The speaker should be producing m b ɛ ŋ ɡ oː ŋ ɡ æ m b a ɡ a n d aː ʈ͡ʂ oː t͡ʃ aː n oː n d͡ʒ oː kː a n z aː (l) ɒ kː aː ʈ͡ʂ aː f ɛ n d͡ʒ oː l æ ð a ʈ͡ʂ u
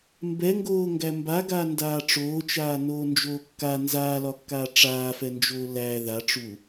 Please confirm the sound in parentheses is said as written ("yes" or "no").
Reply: yes